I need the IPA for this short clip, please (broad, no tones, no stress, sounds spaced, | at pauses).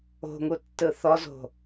o̤ ŋ u tː ɯ θ ɔ z o̤